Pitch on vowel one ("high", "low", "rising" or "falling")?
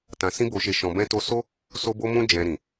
low